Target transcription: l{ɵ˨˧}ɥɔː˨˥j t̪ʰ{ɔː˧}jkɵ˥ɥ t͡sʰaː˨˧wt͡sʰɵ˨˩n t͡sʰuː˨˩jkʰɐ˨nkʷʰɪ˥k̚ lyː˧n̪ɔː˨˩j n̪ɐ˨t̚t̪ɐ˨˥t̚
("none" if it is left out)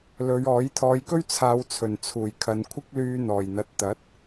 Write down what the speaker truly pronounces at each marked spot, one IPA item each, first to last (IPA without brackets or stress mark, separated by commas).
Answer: ɵ˨˧, ɔː˨˧